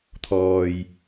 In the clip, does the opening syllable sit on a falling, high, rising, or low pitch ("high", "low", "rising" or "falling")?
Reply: low